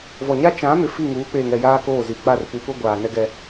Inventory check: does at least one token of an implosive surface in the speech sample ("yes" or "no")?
no